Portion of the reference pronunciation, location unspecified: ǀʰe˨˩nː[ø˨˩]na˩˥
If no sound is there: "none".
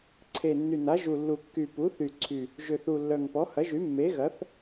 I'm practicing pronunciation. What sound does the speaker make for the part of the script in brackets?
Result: y˨˩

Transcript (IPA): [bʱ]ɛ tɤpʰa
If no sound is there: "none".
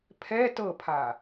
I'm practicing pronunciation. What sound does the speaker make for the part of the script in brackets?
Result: pʰ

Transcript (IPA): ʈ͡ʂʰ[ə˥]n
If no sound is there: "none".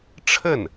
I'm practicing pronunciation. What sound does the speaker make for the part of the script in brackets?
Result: ə˥˩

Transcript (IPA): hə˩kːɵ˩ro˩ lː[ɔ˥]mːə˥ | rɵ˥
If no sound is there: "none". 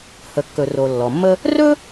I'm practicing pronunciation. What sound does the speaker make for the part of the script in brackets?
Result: ɔ˩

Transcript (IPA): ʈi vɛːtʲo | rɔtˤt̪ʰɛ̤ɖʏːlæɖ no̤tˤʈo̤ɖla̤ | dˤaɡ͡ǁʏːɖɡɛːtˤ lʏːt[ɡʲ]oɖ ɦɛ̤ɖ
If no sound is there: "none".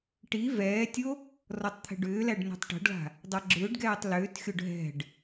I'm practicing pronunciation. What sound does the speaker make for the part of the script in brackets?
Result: xʲ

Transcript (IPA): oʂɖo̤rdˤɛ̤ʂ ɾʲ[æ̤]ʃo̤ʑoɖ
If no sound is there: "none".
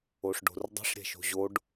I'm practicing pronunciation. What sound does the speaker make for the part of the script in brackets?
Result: ɛ̤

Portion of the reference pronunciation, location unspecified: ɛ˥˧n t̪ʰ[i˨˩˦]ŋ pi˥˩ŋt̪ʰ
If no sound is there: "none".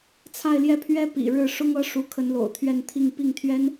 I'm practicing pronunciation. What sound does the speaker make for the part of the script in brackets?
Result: i˥˧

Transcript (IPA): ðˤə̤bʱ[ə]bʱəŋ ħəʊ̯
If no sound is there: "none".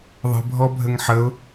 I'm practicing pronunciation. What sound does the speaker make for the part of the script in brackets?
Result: ɔ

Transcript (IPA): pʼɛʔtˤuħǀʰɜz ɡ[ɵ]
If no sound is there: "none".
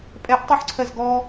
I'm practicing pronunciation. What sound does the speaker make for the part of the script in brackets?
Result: ɔ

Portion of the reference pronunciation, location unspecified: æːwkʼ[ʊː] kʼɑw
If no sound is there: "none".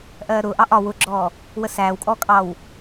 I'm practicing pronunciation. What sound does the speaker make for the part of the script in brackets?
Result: ɔː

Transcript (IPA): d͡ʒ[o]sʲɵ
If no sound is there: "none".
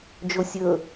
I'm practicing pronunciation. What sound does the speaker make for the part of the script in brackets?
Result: o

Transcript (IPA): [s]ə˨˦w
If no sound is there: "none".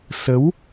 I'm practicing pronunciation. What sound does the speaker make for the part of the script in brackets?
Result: s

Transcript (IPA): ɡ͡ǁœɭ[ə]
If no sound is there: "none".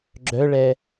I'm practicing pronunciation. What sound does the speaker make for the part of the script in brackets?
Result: ɛ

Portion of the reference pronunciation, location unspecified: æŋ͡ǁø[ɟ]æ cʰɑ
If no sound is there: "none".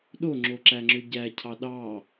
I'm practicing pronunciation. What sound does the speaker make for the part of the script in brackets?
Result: ɟ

